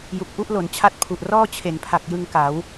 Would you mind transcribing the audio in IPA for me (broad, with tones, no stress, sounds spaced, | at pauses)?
j u˨˩ k̚ ʔ u˥˩ ʔ l o˩˦ n t͡ɕʰ a˥˩ t̚ pʰ u˨˩ ʔ r ɔː˥˩ t͡ɕʰ e˩˦ n pʰ a˨˩ k̚ j ɯ˧ ŋ k a˩˦ w